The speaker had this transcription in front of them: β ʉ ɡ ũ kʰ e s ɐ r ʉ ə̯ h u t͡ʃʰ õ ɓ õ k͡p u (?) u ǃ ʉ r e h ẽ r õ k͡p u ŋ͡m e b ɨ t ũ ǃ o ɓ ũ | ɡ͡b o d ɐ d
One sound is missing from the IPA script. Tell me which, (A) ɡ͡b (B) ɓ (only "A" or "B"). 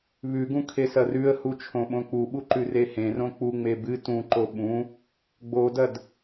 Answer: B